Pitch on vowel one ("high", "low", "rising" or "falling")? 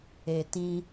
low